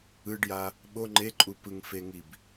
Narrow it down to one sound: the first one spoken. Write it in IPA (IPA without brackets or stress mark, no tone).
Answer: ɯ